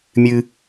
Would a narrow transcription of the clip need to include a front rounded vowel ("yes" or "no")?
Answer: no